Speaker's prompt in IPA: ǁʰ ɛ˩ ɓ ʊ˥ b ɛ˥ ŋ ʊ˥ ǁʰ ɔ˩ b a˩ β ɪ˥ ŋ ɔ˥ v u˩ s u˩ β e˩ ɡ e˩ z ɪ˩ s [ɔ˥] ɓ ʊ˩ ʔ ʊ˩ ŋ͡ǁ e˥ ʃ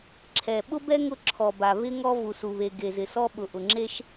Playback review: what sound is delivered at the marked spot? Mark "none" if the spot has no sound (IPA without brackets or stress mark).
ɔ˥